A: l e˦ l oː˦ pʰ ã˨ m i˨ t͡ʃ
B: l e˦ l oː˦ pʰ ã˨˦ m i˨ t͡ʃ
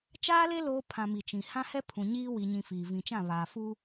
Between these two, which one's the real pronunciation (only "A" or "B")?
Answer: A